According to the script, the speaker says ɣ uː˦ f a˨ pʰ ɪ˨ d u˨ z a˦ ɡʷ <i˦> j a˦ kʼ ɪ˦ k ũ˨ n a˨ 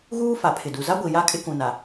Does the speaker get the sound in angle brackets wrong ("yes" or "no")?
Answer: yes